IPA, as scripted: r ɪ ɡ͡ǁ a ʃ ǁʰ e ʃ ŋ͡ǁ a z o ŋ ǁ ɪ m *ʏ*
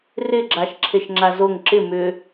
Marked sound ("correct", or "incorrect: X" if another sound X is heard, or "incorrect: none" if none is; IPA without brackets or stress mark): correct